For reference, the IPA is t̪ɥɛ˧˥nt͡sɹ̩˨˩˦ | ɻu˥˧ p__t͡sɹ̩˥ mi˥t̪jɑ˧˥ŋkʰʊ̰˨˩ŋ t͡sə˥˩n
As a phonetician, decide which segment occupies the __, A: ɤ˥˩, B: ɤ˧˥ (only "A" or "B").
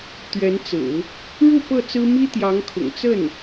A